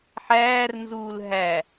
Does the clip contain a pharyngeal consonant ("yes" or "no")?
yes